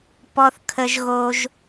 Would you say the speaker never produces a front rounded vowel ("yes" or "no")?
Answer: yes